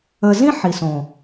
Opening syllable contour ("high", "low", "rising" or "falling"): low